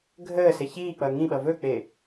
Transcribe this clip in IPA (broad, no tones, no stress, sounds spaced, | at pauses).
ɡʱ əː s e ç iː k͡p ʌ ŋ ĩ ɓ ʌ v ɵ k͡p e